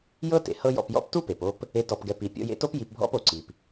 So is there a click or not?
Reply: yes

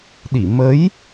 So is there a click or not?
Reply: no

